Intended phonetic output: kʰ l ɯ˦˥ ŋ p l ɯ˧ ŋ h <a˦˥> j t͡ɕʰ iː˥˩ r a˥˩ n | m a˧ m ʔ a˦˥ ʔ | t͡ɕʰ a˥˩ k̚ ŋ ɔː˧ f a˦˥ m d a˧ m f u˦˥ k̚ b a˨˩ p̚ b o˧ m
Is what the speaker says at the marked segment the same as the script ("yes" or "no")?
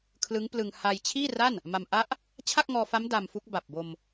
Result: no